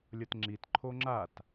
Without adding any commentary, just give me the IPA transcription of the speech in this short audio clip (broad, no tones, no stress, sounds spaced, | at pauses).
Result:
lʲ ʌ t ŋ͡ǁ i t ǃʰ o ŋ͡ǁ a t